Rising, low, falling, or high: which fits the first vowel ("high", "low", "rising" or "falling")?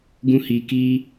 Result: high